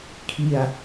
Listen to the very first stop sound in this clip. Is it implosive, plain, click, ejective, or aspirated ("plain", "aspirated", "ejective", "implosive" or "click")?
aspirated